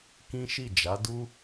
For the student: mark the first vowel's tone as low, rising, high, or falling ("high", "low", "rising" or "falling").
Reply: high